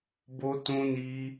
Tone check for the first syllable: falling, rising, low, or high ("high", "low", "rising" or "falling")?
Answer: high